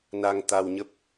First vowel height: low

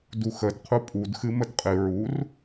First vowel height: high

